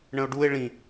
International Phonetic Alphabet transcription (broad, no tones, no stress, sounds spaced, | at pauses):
ɳ ə̃ o̯ ɖ u e̯ ɭ ĩ